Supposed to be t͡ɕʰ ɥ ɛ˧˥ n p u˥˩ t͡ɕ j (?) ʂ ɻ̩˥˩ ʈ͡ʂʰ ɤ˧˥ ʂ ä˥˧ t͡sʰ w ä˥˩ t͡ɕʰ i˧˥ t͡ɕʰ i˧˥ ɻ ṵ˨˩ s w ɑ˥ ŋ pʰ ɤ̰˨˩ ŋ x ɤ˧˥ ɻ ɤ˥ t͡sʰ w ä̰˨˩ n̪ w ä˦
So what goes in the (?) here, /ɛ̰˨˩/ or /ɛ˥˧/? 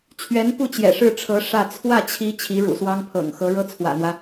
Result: ɛ̰˨˩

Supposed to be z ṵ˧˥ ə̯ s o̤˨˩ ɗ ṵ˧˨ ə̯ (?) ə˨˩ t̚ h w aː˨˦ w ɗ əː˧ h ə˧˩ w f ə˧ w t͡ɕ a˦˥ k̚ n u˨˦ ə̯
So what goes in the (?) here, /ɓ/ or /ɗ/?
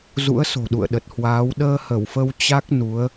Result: ɗ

